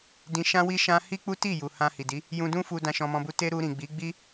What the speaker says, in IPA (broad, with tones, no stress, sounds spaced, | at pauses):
d ĩ˧ ʃ ã˦ w i˦ ʃ ã˦ h i˦ k͡p u˦ t i˦˨ j u˨ h ã˧ h i˨ d i˨˦ | j ũ˧ d ũ˦ f u˧ d ã˧ ʃ ɔ̃˧ m ɔ̃˧ b u˧ t e˦ ɾ u˧ ɾ ĩ˨ ɡ͡b i˨˦ ɡ͡b i˦